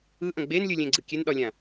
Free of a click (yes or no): no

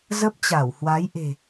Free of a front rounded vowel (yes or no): yes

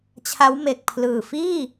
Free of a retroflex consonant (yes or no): yes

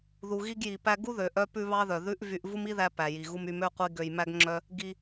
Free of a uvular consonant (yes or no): no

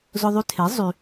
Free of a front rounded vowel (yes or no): no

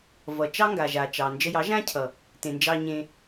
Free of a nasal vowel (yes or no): no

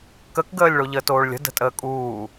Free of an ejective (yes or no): no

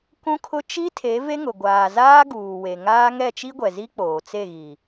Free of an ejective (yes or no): yes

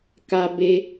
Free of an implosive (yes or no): yes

